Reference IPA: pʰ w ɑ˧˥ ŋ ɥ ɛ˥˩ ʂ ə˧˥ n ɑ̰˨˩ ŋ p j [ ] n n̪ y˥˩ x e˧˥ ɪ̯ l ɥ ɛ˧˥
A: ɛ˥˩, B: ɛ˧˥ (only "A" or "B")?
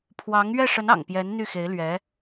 B